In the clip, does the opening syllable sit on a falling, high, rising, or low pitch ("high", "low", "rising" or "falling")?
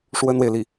high